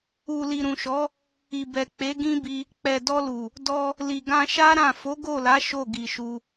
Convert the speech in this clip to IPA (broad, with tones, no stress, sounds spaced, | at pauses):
u˨ l i˨ ɾ ũ˨ ʃ ɔ˨˦ | i˨ b ɛ˨ k͡p e˨˦ ɡ ĩ˦ b i˧ | k͡p ɛ˨ d ɔ˧ l u˨ | d ɔ˧ | l i˨ ɡ ã˧ ʃ a˦ ɾ ã˦˨ f o˨˦ ɡ o˦˨ l a˨˦ ʃ o˦˨ ɡ i˨ ʃ u˧